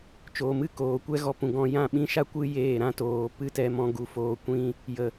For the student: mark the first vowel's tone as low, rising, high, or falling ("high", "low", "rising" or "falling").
low